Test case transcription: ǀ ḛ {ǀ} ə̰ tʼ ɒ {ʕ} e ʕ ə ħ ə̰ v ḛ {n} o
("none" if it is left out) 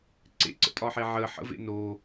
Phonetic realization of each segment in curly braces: ǀ, ħ, n

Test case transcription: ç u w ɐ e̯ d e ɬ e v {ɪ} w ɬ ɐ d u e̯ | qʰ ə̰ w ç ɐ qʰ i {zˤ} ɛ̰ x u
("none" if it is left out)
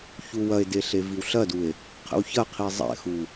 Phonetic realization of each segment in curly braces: i, zˤ

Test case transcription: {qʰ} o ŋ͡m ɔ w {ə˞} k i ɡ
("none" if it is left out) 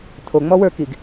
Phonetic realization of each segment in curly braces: tʰ, ə˞

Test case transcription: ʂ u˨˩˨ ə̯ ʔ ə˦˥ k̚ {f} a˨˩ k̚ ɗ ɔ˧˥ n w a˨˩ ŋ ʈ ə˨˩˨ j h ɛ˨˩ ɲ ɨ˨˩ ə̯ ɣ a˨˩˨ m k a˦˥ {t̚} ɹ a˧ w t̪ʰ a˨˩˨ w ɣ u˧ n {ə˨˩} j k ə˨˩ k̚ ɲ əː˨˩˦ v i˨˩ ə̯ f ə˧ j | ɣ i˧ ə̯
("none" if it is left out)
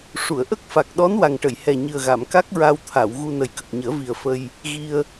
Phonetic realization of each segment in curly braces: f, k̚, ə˨˩

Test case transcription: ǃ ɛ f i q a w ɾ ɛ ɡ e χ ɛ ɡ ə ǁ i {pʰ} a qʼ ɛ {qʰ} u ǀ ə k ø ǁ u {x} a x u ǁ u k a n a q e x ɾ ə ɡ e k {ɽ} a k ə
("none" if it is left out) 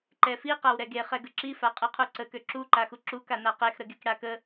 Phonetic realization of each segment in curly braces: f, qʰ, ǃ, ɽ

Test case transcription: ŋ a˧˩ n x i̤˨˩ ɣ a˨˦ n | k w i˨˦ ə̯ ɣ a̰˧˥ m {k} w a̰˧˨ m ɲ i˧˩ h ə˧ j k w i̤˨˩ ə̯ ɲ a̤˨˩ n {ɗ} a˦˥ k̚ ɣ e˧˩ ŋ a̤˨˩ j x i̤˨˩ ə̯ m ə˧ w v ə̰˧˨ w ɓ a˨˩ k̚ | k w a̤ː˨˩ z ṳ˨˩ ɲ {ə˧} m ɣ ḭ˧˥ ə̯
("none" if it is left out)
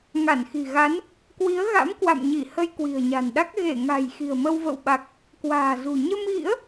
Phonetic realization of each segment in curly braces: k, ɗ, ə˧

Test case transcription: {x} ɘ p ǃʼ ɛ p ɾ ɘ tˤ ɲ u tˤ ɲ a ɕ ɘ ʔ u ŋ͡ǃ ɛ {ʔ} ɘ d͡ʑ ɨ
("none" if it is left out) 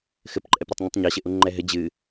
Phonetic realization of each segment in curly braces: x, ɦ

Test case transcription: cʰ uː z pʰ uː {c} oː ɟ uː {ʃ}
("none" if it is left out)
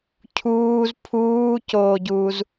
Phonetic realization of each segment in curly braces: c, z

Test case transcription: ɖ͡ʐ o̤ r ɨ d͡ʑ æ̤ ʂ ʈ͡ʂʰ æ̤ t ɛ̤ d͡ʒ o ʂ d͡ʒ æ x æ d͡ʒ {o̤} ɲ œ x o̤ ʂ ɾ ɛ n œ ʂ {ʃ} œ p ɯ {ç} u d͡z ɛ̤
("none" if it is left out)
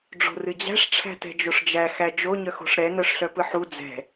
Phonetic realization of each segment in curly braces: o, ɬ, ħ

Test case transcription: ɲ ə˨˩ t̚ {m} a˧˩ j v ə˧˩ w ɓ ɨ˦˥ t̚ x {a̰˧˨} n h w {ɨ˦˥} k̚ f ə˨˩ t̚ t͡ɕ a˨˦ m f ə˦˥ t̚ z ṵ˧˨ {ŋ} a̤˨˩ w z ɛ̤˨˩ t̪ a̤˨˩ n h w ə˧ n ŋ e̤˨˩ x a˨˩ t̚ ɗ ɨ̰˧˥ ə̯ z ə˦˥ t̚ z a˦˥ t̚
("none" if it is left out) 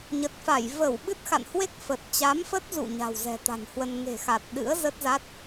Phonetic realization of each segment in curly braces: f, a̰˧˨, e˦˥, ɲ

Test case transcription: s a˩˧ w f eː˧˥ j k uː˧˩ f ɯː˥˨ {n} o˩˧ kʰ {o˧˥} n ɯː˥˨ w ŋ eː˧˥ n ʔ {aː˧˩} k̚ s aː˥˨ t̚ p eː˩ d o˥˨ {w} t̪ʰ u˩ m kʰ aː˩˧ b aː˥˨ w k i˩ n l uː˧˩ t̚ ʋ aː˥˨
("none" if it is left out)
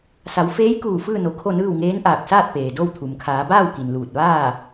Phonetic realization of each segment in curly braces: n, o˥˨, aː˧˩, w

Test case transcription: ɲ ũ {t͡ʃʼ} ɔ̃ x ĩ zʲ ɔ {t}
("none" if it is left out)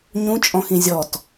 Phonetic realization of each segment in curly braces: t͡ʃʼ, t

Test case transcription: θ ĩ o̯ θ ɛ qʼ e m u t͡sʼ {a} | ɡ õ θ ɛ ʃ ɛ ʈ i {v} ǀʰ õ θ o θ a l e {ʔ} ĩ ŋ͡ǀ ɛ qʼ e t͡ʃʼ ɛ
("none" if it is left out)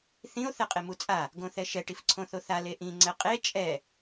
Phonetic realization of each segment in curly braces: a, f, ʔ

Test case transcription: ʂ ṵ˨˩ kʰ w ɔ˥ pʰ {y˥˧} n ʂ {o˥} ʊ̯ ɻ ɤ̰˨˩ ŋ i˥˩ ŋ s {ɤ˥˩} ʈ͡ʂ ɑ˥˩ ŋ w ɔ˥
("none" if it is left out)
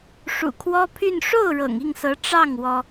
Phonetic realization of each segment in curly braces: y˥˧, o˥˩, ɤ˧˥

